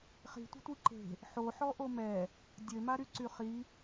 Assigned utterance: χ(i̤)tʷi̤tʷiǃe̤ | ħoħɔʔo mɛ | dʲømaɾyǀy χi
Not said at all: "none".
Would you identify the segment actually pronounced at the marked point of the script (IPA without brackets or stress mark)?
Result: i̤